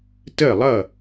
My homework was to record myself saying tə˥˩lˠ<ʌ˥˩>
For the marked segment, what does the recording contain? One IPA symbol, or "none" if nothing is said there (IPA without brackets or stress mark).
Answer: ʌ˥˩